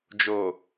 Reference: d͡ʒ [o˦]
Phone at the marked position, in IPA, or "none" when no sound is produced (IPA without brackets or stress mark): o˨